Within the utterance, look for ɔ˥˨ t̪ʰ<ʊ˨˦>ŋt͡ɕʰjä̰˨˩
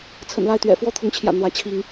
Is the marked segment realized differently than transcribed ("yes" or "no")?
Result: no